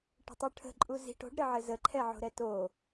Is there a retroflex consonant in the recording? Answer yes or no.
yes